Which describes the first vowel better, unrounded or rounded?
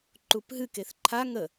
rounded